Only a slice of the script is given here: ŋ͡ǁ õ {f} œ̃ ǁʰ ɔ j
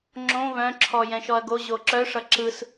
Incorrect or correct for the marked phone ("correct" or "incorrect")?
incorrect